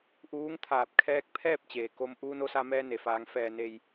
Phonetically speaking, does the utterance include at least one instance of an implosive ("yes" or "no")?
no